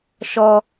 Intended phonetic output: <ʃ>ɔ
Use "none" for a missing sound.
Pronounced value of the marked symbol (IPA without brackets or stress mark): ʃ